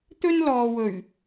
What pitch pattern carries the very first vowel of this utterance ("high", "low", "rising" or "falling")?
high